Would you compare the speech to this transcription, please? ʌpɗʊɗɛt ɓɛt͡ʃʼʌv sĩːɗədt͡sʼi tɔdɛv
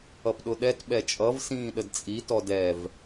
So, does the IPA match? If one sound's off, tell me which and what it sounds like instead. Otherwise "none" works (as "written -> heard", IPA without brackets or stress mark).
none